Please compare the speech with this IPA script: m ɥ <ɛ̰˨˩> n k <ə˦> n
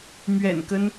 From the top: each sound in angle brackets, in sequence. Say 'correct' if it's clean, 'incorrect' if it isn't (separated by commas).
correct, correct